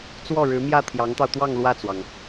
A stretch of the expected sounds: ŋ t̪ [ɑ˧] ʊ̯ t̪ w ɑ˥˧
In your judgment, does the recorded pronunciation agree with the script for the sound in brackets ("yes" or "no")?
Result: yes